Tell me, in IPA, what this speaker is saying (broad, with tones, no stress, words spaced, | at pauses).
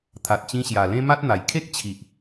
t̪ʰa˨t̚t͡ɕĩ˧ɕja˨˩ lẽ˦ma˦t̚n̪a˨˩j kʰe˦k̚ t͡ɕʰi˨ʔ